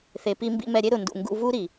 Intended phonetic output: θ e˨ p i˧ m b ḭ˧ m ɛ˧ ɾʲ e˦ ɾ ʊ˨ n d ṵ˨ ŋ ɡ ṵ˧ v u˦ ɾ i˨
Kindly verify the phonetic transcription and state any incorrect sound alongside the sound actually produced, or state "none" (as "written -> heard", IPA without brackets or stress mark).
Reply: none